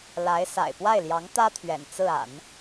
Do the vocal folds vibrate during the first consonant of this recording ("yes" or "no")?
yes